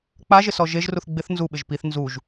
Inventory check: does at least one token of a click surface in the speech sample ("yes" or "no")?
no